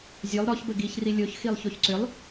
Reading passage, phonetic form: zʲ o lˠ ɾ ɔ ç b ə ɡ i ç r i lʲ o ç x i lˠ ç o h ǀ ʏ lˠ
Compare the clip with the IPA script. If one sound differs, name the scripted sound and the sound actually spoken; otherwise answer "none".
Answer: h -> ç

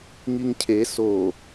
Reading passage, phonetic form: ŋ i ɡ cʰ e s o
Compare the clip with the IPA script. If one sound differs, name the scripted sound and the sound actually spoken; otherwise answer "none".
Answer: ɡ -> ŋ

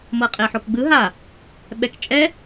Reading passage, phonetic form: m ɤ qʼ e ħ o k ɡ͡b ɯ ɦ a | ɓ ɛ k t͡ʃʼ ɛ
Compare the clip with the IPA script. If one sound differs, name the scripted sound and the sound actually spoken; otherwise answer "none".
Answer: none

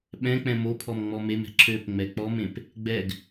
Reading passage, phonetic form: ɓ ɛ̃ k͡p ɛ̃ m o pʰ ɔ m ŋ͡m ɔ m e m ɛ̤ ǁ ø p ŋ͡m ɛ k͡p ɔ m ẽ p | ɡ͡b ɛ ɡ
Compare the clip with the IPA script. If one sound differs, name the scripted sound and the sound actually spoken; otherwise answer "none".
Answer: none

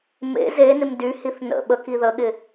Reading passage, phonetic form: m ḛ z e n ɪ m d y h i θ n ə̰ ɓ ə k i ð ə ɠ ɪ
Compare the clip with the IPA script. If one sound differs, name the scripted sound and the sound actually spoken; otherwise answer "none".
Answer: none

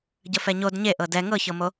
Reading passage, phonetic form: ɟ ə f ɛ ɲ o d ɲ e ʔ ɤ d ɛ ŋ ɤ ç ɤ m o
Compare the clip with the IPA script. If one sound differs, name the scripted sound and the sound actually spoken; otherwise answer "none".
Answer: none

